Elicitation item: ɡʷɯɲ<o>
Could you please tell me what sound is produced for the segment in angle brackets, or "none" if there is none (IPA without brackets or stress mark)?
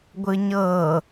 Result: ɤ